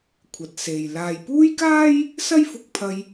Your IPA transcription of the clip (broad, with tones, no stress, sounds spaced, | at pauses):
kʷʰ ɐ˨ t̚ s e˨ j l aː˨ j p uː˥ j k aː˥ j | s ɐ˥ j f ʊ˧ k̚ pʰ ɐ˧ j